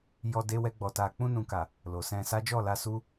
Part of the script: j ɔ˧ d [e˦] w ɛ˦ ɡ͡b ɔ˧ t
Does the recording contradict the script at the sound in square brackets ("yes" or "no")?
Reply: no